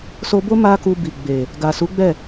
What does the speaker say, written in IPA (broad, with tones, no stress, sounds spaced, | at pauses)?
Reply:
s o˧ b o˦ m a˦ k u˧ b i˨ ɡ͡b e˨ | ɡ a˨ s u˨˦ ɡ͡b ɛ˦˨